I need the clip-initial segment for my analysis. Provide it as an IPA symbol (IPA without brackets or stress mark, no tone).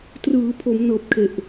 t